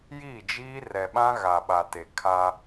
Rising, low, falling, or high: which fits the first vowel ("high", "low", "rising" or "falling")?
falling